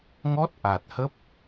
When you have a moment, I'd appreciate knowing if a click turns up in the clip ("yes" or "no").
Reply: no